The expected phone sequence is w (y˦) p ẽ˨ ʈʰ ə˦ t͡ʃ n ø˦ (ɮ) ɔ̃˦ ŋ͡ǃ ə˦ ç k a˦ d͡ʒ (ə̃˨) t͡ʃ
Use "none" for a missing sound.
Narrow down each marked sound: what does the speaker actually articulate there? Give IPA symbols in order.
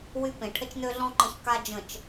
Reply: y˦, ɮ, ə̃˨

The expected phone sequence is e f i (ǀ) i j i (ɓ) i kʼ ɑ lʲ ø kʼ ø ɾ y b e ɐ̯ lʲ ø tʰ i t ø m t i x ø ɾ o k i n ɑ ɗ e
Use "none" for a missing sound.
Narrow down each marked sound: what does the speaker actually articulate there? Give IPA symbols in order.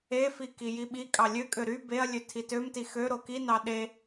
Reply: k, ɓ

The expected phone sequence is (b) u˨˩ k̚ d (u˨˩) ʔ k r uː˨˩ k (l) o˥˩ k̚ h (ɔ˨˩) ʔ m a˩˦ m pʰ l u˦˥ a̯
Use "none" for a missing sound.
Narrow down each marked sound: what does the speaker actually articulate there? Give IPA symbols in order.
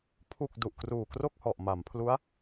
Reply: pʰ, u˨˩, r, ɔ˨˩

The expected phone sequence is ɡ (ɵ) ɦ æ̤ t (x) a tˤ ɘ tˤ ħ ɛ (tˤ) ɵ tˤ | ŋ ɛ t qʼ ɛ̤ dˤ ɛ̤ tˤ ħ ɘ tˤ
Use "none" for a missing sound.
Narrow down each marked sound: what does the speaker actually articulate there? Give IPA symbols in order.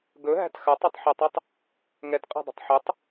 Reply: ɵ, x, tˤ

